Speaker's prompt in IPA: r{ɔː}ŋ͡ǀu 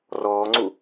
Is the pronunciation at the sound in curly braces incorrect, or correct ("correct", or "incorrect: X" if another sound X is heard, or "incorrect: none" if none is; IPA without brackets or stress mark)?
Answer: correct